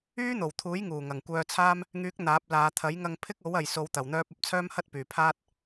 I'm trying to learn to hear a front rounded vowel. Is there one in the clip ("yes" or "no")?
yes